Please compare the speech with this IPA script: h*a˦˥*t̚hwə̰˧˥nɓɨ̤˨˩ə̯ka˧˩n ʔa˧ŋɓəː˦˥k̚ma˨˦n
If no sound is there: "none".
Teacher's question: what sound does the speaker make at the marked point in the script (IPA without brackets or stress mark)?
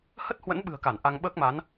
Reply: ə˦˥